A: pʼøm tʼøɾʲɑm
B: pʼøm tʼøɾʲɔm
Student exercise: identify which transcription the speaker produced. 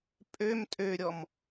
B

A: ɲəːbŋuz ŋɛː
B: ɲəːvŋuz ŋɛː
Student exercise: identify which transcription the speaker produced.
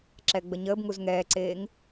A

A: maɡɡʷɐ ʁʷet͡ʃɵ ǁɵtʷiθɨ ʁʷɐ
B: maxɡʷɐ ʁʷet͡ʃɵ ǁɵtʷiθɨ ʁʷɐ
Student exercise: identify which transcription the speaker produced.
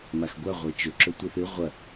B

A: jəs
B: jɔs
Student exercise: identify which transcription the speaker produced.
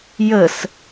A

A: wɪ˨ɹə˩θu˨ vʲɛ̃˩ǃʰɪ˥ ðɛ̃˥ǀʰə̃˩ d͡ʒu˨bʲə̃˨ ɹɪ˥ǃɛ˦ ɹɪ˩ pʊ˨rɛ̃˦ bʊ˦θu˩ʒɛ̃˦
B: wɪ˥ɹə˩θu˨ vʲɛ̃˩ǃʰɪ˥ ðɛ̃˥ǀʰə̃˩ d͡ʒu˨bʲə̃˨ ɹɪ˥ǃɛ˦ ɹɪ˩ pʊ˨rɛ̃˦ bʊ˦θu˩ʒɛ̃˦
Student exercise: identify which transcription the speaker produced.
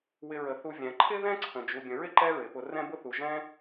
A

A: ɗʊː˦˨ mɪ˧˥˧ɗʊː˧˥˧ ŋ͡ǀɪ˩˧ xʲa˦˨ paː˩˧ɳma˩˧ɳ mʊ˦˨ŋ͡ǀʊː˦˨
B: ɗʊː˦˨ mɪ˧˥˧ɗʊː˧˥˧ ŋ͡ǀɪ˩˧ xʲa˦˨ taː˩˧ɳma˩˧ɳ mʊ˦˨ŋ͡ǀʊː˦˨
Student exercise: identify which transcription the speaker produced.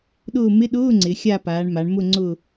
A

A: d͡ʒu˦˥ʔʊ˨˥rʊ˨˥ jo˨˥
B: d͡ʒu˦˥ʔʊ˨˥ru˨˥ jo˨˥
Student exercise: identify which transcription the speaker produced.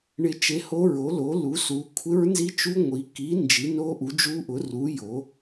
B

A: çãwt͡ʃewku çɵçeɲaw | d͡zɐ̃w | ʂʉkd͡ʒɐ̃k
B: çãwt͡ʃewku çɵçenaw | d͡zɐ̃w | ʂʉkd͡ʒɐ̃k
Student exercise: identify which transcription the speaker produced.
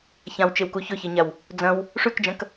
A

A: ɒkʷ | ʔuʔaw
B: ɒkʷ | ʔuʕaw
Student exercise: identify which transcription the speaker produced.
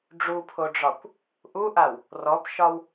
A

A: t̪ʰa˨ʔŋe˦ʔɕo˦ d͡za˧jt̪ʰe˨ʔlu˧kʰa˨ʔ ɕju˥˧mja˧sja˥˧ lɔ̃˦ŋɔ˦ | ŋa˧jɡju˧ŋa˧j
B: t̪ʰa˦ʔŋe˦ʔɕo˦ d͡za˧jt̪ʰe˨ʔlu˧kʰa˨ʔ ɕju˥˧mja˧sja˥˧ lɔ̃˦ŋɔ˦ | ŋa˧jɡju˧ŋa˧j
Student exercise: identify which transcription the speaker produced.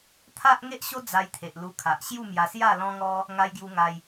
B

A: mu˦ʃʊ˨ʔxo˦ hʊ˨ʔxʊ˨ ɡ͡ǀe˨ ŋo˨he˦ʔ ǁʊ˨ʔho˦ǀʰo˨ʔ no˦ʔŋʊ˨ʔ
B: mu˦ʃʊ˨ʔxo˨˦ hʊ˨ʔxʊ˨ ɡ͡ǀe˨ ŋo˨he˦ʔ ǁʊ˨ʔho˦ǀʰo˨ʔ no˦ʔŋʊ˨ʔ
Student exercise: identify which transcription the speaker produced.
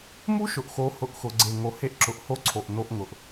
B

